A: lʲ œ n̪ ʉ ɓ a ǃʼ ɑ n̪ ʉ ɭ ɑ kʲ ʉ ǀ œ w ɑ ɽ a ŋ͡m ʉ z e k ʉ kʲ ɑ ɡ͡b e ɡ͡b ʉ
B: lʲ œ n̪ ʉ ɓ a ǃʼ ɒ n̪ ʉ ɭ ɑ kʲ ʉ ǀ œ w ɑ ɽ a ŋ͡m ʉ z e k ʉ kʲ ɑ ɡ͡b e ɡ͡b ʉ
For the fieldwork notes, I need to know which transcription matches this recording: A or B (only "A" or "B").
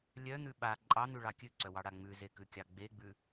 A